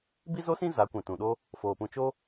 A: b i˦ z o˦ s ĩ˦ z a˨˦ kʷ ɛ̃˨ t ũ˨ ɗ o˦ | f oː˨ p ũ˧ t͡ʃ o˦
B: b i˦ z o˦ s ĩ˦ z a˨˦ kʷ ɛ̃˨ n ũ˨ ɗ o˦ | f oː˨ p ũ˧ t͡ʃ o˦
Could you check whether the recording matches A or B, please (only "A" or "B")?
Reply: A